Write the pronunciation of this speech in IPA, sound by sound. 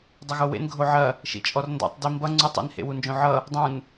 dˤ ʌ ɣ o w ḛ n ɡʱ o ʕ ɐ | ʃ ḭ t͡ʃʼ ɔ r n d ɔ̰ tˤ d i m b ʌ ŋ͡ǀ u tˤ ḭ n h ḛ w u n d͡ʒ õ ʕ ʌ | dˤ ũ n

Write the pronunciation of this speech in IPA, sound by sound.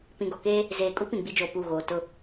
p ĩ˨ ɡ ɔ˨ k eː˦ | z eː˨ kʼ u˦ p ĩ˨ ɡ͡b i˦ d͡ʒ oː˨ p u˦˨ ɣ oː˨ t ʊ˦˨

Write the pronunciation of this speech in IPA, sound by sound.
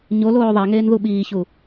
ɲ o l oː ðˤ æ ŋ eː n ð u ɓ iː ç u

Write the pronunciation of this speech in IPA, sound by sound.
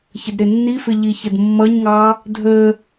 ç ə d ɾ ɪ nː i f ɪ ʎ i ç ə d mː ʌ ɲ ŋ ɑ | dʱ ə

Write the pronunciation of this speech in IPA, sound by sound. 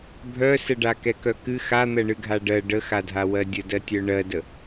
bʱ œ s ə ɖ a k ɛ k œ k ɨ x a n̪ ɜ ɳ ɨ ɡʱ a ɖ ɜ ɖ ə x a dʱ a w ɜ dʲ ə d ɜ tʲ œ ɳ ɜ d ə

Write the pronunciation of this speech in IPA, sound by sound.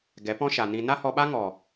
ɡ ɛ˨˦ p ɔ̃˦ ʃ a˨ n ĩ˧ n a˦ h ɔ˧ ɓ a˦ ŋ ɔ˨

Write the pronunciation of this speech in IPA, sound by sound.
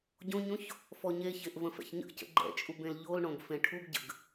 ɟ õ ɲ õ ç | f ɔ ɲ e ç e ʔ v ə̃ f ɛ̰ ç ɲ ə̰ ʔ c ə̰ ɡ͡ǃ ɛ̰ t͡ʃʼ u b ẽ l ʎ o l ɳ õ ɡ f ẽ ʈʰ u ɡ ɟ ə̰ ɡ

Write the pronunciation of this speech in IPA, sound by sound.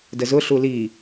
d ə z ʊ ɬ u l i

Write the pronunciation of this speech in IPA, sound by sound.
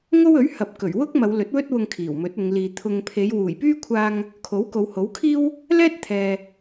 ŋ o˥ w ɵ˨˥ ɥ h ɐ˨ p̚ k ɵ˨˩ ɥ w ʊ˥ k̚ m ɐ˨˧ w l ɵ˨˥ t̚ w ɵ˥ t̚ w ʊ˧ ŋ kʰ iː˨˩ w m ɵ˨˥ t̚ ʊ˨˧ ŋ l iː˨ t̪ʰ ʊ˨ ŋ pʰ e˨˧ j w uː˨˩ j p yː˥ kʷʰ aː˧ ŋ | kʰ o˨˥ w k o˨˧ w h o˨˥ w kʰ iː˥ w | l ɛː˥ t̚ t̪ʰ ɛː˨

